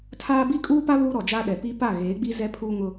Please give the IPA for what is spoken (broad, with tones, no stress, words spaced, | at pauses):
tʰaː˦ bi˦kʼuː˦pa˦ βuː˦ɾɔ˨d͡ʒaː˦ɗɛ˨ pi˦ pa˦˨ɣeː˨˦ɡ͡bi˦ zɛ˦ pʰuː˦ŋʊ˦